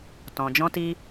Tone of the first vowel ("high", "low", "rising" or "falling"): low